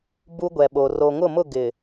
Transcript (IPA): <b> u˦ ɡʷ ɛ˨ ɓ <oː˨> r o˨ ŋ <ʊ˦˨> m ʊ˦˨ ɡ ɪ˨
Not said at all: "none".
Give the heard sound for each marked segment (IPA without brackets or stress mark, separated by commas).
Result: b, o˨, ʊ˦˨